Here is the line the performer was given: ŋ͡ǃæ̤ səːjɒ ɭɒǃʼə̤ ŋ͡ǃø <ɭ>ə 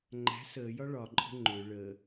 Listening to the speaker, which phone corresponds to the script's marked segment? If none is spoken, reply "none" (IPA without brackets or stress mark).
ɭ